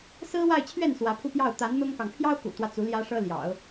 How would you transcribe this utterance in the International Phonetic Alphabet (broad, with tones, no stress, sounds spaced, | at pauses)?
s ɹ̩˥ w a˥˧ ɪ̯ t͡ɕʰ ɥ ɛ˥˩ n s w ä˧˥ pʰ u˥˧ p j ɑ˥˩ ʊ̯ t̪ a˧˥ n n̪ ʊ˥ ŋ k ɑ˨ ŋ pʰ j ɑ˥ ʊ̯ k ṵ˨˩ t̪ w ä˦ t͡s u˧˥ l j ä˥ ʂ ɤ˥ l j ɑ̰˨˩˦ ʊ̯